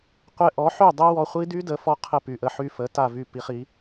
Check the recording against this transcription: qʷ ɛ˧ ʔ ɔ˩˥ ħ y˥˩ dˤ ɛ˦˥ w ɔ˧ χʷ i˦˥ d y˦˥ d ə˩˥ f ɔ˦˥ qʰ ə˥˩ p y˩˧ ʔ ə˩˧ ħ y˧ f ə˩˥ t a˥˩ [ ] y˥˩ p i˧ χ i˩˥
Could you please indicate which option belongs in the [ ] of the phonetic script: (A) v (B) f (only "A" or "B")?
A